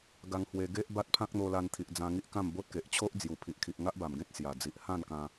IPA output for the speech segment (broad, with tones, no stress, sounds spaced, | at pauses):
ɡ a˧ ŋ h w e˧ ɡ e˦ ʔ b a˦ t̚ pʰ ã˦ k̚ n̪ o˧ l a˧ n t̪ʰ i˨ ʔ d͡z ã˧ ŋ i˦ ʔ k ã˥˧ m b o˦ t̚ k e˨ ʔ t͡ɕʰ o˦ ʔ d͡z j u˨˩ pʰ i˨ ʔ kʰ i˨ ʔ ŋ a˦ ʔ b a˨˩ m ɡ ẽ˦ t̚ s j a˨˩ d͡z i˨ ʔ h ã˥˧ n k ã˧